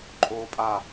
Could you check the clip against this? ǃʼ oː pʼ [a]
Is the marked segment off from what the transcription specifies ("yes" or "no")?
no